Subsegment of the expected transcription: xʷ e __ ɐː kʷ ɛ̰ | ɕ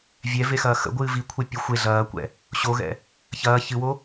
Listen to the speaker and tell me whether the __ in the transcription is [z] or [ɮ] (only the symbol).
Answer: ɮ